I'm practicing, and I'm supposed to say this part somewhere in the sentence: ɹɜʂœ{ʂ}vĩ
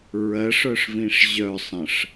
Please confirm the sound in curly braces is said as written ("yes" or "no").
yes